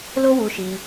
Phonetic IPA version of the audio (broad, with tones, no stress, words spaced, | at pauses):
lo˦wu˧ʃi˧